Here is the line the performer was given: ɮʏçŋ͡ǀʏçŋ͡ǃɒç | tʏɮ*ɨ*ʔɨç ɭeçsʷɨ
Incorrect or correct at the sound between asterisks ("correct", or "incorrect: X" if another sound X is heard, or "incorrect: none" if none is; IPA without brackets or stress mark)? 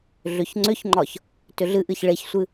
correct